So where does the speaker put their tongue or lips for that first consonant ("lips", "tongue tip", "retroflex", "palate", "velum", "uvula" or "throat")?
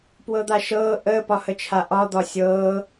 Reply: lips